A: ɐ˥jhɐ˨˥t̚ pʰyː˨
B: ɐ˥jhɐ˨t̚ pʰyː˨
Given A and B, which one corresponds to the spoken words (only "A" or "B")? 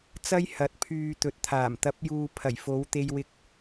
A